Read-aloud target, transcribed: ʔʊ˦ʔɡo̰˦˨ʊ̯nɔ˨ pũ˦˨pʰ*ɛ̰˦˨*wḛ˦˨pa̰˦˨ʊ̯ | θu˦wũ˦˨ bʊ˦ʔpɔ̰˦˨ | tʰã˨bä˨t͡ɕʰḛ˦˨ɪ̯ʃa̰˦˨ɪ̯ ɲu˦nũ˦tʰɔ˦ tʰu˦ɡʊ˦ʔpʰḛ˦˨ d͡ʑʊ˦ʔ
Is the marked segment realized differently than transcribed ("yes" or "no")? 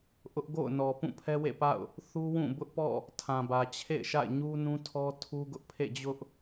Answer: yes